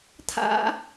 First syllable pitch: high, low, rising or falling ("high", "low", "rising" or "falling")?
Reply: high